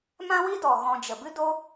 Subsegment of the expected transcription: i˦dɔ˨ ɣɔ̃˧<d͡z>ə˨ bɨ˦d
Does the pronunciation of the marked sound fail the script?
yes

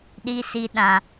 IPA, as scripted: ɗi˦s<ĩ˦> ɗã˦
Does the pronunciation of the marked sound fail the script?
yes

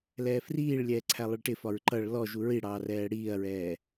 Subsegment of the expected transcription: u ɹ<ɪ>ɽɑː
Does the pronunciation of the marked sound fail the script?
yes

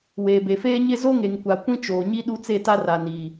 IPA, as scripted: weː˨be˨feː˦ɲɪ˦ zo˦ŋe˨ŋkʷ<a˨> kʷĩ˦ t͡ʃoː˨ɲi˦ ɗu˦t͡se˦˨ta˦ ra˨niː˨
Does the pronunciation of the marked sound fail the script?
no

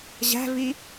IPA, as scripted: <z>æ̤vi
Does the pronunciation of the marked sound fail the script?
yes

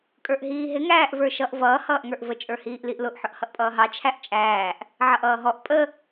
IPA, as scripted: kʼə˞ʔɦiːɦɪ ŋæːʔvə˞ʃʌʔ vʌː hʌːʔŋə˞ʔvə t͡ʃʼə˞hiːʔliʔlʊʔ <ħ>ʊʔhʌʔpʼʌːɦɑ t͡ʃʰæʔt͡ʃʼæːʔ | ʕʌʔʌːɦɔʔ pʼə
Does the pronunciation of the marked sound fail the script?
no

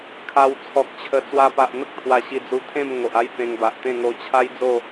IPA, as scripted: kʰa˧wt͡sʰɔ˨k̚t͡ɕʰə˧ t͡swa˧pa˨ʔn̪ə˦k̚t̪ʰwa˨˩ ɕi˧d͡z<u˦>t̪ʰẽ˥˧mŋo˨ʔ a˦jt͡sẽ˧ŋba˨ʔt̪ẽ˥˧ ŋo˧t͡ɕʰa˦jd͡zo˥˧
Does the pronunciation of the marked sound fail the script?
yes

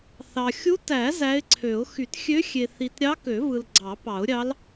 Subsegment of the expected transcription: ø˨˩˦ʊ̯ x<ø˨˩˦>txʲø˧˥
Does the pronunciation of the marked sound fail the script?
yes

